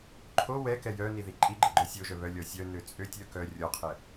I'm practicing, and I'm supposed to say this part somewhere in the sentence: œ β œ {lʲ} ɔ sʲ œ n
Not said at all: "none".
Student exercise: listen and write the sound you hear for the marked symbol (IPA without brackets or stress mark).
lʲ